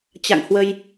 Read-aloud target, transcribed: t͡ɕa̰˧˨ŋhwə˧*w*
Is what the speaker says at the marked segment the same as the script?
no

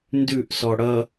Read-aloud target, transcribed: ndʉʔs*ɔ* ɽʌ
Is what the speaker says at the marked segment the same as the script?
yes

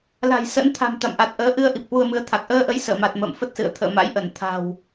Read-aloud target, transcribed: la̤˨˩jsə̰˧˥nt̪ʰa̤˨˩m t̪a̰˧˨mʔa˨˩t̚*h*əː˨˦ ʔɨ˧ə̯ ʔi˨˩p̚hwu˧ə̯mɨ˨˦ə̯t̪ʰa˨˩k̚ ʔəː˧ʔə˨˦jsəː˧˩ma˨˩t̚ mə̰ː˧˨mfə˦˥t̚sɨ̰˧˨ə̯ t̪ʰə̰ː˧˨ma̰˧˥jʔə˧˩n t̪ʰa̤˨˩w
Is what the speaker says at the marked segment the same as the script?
no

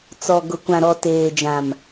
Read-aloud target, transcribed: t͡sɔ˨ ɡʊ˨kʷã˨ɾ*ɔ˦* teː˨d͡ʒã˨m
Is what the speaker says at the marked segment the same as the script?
no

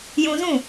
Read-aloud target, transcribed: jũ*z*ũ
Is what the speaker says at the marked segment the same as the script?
yes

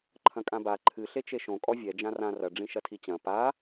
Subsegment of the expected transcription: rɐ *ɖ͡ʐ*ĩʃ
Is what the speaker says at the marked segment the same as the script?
yes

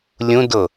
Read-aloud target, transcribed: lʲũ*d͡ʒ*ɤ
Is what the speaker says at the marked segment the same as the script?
no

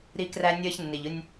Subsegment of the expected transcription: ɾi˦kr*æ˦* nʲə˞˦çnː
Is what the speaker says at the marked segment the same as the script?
yes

